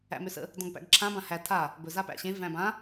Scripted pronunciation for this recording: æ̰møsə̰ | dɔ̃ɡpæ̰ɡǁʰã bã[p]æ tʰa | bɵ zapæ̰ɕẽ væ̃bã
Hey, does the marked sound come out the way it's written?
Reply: no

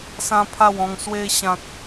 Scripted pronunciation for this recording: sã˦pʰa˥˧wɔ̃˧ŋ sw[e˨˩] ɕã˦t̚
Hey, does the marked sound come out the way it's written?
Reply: no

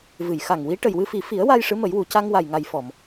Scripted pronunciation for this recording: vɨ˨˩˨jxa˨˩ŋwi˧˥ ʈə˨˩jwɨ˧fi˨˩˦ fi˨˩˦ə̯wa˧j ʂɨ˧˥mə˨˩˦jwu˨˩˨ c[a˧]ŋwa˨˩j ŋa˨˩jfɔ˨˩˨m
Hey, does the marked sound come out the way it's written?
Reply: yes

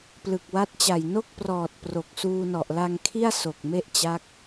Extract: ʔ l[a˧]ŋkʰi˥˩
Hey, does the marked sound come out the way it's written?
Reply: yes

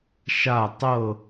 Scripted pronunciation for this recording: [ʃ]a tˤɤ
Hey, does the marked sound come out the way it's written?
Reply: yes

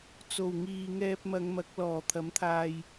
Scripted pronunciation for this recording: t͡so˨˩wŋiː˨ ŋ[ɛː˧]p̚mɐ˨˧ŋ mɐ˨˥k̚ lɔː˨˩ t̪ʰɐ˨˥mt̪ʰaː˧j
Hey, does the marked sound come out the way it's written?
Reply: yes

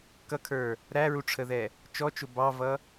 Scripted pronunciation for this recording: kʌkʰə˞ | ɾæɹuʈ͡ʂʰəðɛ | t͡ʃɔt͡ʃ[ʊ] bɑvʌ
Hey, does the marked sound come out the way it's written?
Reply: yes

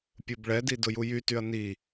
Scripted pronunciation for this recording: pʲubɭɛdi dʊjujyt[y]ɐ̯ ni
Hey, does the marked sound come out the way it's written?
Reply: yes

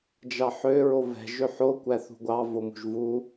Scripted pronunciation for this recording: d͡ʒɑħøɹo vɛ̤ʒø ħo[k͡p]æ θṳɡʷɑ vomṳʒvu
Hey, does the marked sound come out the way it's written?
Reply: no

